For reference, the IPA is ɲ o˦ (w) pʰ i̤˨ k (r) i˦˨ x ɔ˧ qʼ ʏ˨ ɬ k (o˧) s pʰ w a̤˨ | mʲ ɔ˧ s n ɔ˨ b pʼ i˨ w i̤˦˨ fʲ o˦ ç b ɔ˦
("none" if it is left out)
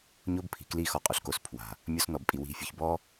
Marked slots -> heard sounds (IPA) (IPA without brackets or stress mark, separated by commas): b, l, o˧